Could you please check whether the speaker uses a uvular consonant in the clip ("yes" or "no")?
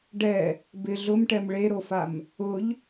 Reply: no